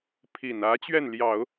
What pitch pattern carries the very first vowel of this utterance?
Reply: low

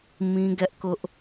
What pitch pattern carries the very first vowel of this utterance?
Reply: high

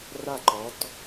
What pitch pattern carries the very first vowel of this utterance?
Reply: falling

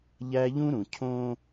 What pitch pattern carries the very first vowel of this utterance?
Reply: high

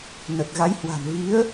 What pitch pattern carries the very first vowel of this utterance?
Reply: low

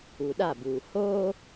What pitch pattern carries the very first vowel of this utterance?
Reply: low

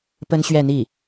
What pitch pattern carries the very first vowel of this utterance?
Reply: high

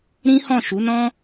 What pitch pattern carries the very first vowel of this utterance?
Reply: high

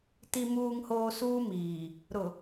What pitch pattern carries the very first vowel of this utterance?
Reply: low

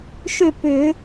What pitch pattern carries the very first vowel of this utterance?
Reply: falling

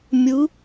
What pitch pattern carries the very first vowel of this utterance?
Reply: rising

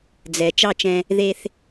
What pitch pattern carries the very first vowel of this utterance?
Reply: low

